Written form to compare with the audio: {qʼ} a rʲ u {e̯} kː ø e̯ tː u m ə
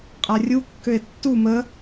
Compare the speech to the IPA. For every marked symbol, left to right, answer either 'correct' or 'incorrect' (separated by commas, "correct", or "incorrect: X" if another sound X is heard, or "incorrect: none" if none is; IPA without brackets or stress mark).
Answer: correct, incorrect: none